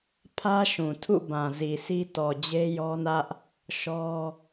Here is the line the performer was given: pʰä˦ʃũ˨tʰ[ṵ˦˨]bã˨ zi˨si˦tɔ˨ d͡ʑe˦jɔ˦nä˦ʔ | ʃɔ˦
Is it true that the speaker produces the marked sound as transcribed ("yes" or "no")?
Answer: yes